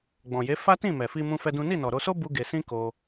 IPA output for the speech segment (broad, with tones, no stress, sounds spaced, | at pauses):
ɡ͡b ɔ̃˨ j e˨˦ f a˦ t ĩ˦˨ m ɛ˨ f i˧ m ũ˦ f ɛ˦ d ũ˦ n i˦˨ n ɔ˨ ɾ o˧ s o˦ b u˦ ɡ e˧ s ĩ˦ k o˧